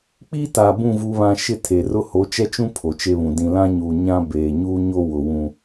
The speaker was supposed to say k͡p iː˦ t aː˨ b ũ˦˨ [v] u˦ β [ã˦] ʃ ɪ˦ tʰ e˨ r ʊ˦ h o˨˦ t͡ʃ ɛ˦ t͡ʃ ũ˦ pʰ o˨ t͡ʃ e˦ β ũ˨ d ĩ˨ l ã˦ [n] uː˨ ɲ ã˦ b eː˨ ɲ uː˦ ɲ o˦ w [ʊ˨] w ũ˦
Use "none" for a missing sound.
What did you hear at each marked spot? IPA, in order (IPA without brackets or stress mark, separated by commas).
v, ã˦, ɲ, ʊ˨